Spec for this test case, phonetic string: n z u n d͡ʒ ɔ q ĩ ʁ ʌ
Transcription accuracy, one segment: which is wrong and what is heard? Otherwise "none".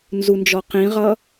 none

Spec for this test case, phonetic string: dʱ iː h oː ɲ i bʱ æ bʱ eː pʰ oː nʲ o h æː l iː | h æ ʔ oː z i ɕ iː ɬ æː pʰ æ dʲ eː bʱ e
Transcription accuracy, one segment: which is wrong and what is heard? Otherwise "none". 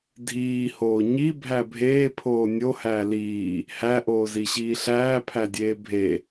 none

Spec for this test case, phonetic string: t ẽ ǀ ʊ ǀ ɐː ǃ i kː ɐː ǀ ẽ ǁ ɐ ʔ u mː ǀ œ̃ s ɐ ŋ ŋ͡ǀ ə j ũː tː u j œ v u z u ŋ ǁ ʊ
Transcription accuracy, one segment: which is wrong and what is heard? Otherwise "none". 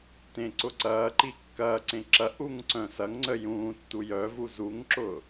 mː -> ŋ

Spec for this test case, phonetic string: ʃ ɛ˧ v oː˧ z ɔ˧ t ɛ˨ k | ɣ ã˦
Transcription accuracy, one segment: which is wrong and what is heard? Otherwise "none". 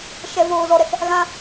t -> ɾ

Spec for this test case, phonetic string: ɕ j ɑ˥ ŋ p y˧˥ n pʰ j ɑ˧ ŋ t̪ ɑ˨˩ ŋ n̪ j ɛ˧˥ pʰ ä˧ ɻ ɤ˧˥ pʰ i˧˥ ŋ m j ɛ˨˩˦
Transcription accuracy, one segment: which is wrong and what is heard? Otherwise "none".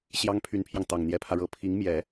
p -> pʰ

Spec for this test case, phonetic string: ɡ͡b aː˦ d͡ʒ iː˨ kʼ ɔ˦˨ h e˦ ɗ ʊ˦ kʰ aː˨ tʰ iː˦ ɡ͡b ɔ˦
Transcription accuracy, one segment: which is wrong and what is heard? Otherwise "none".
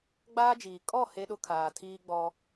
none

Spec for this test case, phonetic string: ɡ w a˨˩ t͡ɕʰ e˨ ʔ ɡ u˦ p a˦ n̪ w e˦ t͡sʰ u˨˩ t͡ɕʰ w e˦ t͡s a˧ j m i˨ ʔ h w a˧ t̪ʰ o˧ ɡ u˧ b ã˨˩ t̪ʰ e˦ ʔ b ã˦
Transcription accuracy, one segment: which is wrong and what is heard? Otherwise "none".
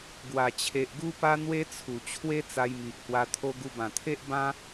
none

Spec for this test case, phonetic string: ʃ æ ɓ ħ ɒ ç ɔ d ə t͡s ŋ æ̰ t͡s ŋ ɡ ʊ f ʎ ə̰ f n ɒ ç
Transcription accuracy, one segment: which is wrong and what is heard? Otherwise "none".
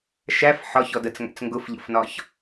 ɓ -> f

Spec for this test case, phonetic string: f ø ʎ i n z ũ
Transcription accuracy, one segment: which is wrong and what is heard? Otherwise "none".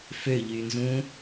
i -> y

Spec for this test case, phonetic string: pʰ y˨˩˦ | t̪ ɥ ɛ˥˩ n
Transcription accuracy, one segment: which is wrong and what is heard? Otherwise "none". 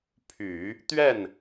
none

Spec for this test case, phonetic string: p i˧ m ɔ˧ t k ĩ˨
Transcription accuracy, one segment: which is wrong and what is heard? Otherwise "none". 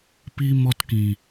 none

